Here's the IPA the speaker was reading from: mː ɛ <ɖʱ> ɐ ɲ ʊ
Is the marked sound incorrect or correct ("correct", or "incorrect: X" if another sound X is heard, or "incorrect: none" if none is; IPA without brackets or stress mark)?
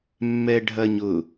correct